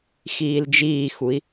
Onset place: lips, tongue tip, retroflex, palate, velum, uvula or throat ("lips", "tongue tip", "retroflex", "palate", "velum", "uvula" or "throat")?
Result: velum